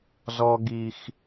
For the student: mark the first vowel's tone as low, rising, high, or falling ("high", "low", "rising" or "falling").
low